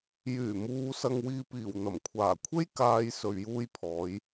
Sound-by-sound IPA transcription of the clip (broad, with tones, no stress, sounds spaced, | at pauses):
j yː˨˩ m uː˨ s ɐ˨ ŋ w iː˨ p iː˨˩ w n̪ ɐ˨˩ m kʷʰ aː˨˩ kʷʰ e˥ j k aː˧ j s ɵ˨ ɥ j uː˧ j pʰ ɔː˨˧ j